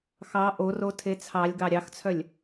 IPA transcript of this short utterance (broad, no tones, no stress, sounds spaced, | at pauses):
x ɑ ʔ o r o tʰ e t͡sʰ ɑ lʲ ɡ ɑ ɾʲ ɑ x t͡sʰ œ lʲ